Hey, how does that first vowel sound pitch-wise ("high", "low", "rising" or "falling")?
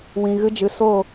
low